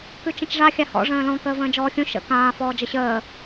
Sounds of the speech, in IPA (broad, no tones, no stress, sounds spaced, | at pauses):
k ʉ t͡ʃ ə̃ t͡ʃ ʐ a xʲ a h ɔ̰ ʐ ə̃ː l ɔ̃ k əː v ə̃ː d͡ʒ ɔː xʲ ũ ʃ ə̰ k ãː f ɔː d͡ʒ ə ɕ əː